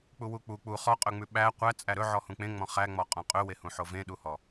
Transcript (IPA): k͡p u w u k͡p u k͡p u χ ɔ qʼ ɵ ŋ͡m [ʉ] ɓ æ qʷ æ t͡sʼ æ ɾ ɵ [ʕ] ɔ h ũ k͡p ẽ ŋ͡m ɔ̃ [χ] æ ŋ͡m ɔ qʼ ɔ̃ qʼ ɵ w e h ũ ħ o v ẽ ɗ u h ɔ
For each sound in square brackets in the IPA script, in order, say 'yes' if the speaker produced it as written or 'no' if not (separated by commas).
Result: yes, yes, yes